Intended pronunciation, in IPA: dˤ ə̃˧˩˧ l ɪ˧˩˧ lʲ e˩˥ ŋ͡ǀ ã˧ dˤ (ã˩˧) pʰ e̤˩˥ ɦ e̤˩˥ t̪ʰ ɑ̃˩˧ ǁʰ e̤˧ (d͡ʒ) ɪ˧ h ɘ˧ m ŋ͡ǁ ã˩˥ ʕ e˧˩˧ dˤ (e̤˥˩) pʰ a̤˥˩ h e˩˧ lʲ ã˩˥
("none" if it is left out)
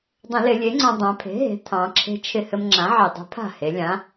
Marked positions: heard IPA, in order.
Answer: ã˩˧, t͡ʃʰ, e̤˩˥

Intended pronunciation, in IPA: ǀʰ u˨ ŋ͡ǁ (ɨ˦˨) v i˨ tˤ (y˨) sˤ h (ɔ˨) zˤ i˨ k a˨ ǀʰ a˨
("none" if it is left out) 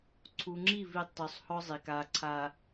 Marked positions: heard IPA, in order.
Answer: i˦˨, y˨, ɔ˦

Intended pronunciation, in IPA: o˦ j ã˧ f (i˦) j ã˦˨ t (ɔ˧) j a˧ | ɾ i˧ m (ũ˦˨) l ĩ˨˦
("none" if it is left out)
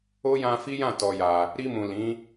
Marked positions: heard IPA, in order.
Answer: i˦, ɔ˧, ũ˨

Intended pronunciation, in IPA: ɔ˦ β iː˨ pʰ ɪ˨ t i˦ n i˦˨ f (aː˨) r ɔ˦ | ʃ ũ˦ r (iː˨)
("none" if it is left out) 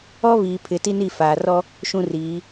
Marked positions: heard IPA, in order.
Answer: aː˨, iː˨˦

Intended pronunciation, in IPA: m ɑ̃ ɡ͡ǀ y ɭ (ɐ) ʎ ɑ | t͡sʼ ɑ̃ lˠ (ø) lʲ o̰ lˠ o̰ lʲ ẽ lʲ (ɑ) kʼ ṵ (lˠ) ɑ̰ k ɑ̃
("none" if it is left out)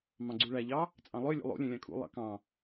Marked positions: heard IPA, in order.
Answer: æ, ø, ɑ̃, lˠ

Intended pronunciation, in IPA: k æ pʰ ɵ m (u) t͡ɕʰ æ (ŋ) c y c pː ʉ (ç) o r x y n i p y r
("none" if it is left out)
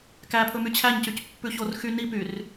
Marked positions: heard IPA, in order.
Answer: y, ɲ, ç

